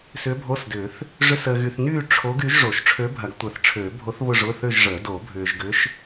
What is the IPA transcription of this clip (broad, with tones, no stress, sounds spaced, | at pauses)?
s ʏː˧˥ bʱ o˧˥˧ s d ʏː˨˩˦ θ | ʐ ʏ˧˥˧ s əː˨ ɣ y˨ θ n yː˥˧ ʈ͡ʂʰ o˧˥ ɡ y˩˥ ʒ ʐ o˨˩˦ ʃ ʈ͡ʂʰ ø˧˥ bʱ ɐ˨˩˦ ɡ tʷ əː˨ θ ʈ͡ʂʰ ø˨˩˦ bʱ o˧˥ θ β ʊ˥˧ ʐ ʊ˧˥˧ θ ø˥˧ ʒ ʐ əː˨˩˦ d o˨˩˦ bʱ ʏː˨ ʒ ɡ ʏ˧˥ ʃ